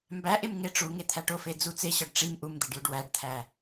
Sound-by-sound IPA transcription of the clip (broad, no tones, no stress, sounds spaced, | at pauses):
m b æ ʔ e m ŋ e ʈ͡ʂ u ŋ e t̪ʰ æ ʈ o f e d͡z u t͡s e ɕ ɒ ɖ ʈ͡ʂ i m ʔ u m d̪ e ɖ j u ɖ w æ ɖ t̪ʰ æ